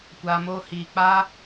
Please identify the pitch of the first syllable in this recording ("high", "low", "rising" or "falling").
low